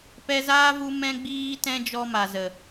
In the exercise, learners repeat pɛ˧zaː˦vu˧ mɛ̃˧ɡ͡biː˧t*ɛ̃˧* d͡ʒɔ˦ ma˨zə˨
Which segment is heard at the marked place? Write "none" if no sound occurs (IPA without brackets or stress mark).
ɛ̃˧